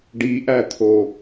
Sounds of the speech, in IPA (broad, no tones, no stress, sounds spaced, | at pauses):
ɖ i ʔ æ t̪ʰ o